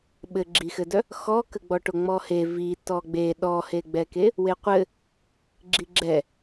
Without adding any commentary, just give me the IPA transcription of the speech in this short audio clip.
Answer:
ɓɘɡ͡ǁixɘdœ | xɔkəɡ͡bɔ ʈoŋ͡mɔhe vi tɔɡ͡be ɗɔheɡ͡bɛke | weqʷɘ | ɡ͡ǁiɡ͡ǁɛ

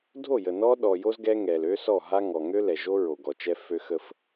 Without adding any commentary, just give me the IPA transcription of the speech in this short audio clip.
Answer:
dʱo˦˨jə˨ nɔ˦ ɗɔ˨jo˦z ɡɛ˦ŋɛ˨l ø˦ sɔ˦˨ɦa˦ ŋɔ˨ŋø˦lɛ˨ʒo˦ ɹo˨ɡɔ˨t͡ʃɛ˦ fø˦xə˦f

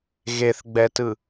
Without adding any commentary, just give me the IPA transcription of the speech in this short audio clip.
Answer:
ɣeθɡ͡bɛtɯ

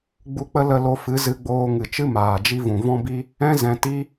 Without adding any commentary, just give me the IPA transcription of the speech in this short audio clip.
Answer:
ɡ͡bu˧k͡pə˦ lə˧lo˧fɨ˨˦ zɨ˧ɡ͡boː˧ ŋɨ˨t͡ʃɨ˦ maː˨d͡ʒi˦ vũ˨vɔ̃˦bi˦ | ɛ̃˦ zɛ̃˨ ti˦

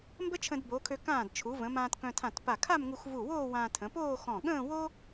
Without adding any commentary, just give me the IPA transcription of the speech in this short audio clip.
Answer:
mbə˥t͡ʃʰə̃˧dbo˩˧kʰø˧ kãː˧˩d t͡ʃʰu˩˧ və̃˩˧mãː˧t kœ̃˧tʰã˧˩tpa˧˩ kʰa˥˧mŋu˧xvu˧˩woː˥˧ wãː˧tʰə̃˩˧poː˥˧xɔ̃˧˩ ɠə̃ː˥˧wo˥

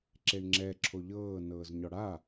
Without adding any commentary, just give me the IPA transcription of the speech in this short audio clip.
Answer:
ǁeɳŋ͡ǁɛ ǁʰoʎɤː nɤːzɲɔɽa

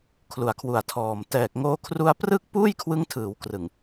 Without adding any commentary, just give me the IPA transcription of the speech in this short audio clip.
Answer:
kʰlu˨˩a̯kʰwu˨˩a̯tʰɔː˨˩m tɛː˨˩k̚ŋoː˧kʰru˧a̯ prɯ˥˩k̚puː˥˩jkʰwɯ˦˥ŋtʰɯː˩˦w krɯ˨˩ŋ

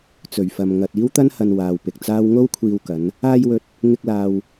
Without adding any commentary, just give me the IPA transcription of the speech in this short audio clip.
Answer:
t͡sɵ˨˩ɥfɐ˨m ŋɐ˨t̚ iː˥wt̪ɐ˥nhɐ˨n waː˨wpɪ˨k̚t͡saː˥w ŋo˥wkʷʰiː˧wkɐ˨˧n | aː˧jwɵ˨t̚ | ŋɪ˧k̚laː˨w

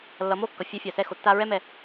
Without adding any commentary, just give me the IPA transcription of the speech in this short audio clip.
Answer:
lːʌ˨˦mo˦kːʌ˨ fʲɛ˧fʲa˨sɛ˧ xo˨tːa˧ɹɛ˦ mɛ˧

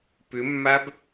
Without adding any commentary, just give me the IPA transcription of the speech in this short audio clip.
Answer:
pʏmːab

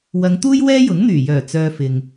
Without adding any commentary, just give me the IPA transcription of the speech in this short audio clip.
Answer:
wɐ˨˧ŋt̪uː˥j wɛː˥jʊ˨˥ŋn̪yː˨˩jœː˨˩ t͡sœː˧fɪ˨ŋ

